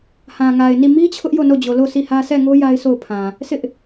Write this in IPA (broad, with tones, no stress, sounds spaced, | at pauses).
h ã˨ ŋ a˨ ɪ̯ n i˦˨ m i˦ t͡ɕʰ ʊ˦ ʔ j o˦˨ n o˦˨ d͡ʑ o˨ l o˦˨ sʰ i˦˨ h ä˦ s ɛ˦˨ ŋ o˦ j a˦ ɪ̯ sʰ o˦˨ ʊ̯ pʰ ã˨ | sʰ ɪ˦ ʔ